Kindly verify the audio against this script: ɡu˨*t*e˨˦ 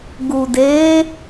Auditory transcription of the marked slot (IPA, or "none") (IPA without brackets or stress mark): d